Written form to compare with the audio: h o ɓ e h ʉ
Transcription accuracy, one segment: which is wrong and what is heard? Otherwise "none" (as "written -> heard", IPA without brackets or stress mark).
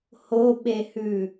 none